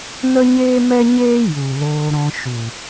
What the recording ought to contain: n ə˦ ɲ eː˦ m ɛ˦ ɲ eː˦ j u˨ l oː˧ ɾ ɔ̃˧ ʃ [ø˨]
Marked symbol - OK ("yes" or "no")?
no